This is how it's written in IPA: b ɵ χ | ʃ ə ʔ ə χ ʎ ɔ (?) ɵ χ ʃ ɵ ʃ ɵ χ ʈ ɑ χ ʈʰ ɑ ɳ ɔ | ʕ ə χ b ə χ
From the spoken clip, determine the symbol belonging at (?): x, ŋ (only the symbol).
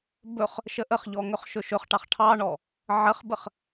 ŋ